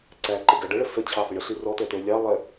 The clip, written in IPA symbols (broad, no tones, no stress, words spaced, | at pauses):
ǀæǃɪɡæ ɖəɭə sət͡ɕʰɑfɪ ɳəɬi rɔt̪ɛt̪ə˞ lʲɑlˠɛ